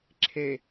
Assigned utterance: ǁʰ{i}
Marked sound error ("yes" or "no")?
yes